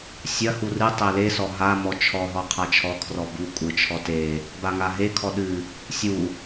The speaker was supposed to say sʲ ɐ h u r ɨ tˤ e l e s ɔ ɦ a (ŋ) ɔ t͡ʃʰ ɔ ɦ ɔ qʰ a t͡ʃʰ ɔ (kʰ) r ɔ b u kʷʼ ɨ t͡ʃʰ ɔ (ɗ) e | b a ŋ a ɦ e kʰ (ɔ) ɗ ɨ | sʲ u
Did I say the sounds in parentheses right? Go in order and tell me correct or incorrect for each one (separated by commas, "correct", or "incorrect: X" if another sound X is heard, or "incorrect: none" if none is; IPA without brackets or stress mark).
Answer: incorrect: m, correct, incorrect: t, correct